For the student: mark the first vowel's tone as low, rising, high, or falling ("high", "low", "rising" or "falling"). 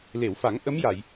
low